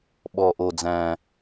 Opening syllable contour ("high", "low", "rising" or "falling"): low